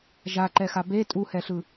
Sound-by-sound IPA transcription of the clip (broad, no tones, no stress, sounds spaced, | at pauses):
ʒ a ǃ ɛ x a b e tʼ u h ɛ ɬ ɯ